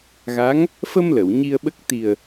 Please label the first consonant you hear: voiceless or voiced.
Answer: voiced